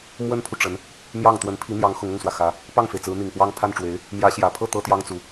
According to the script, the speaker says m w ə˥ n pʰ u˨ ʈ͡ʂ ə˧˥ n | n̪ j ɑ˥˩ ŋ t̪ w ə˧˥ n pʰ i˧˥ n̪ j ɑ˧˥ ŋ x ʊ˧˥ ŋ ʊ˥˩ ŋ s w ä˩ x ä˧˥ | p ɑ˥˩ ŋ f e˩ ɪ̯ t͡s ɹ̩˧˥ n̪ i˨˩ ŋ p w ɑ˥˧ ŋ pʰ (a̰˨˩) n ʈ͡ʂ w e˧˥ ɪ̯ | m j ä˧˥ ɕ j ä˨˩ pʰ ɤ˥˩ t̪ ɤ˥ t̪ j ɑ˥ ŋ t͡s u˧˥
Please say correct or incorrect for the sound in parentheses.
incorrect